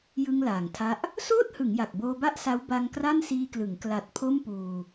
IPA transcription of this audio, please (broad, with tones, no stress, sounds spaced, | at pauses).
j ɯ˧ ŋ l aː˩˦ ŋ tʰ a˦˥ ʔ | s oː˥˩ t̚ h ɯ˩˦ ŋ j a˨˩ k̚ b oː˧ b a˥˩ ʔ s a˦˥ w b a˧ ŋ k r a˥˩ n s iː˧ k l ɯ˩˦ ŋ k l a˨˩ t̚ pʰ o˥˩ m p uː˧